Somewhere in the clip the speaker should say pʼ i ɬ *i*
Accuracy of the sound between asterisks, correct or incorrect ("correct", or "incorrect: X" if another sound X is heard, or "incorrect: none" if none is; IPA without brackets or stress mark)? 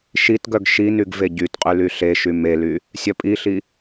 correct